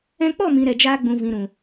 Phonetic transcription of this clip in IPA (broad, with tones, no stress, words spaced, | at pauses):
ɛ̃˧k͡pɔ˦˨mĩ˨ ɾɛ˨d͡ʒaː˧ɡ͡bũ˨vĩ˨ ɾũ˨